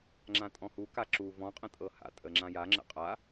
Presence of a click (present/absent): present